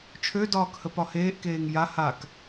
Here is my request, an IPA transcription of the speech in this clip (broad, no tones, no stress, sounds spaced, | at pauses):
t͡ʃʰ ø d ɒː k h ə p ɒ h eː ʔ k eː ŋ j a h a k